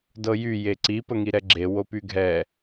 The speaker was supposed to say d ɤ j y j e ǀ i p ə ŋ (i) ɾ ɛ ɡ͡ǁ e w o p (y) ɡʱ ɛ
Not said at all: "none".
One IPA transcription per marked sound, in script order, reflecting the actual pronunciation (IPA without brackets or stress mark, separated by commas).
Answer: i, y